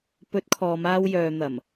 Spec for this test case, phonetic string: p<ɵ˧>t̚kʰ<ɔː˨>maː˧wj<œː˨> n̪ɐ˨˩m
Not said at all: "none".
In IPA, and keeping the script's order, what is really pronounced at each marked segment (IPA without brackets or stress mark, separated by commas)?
ɵ˨˥, ɔː˨, œː˨